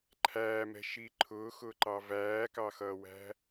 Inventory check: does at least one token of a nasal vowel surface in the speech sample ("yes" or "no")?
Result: no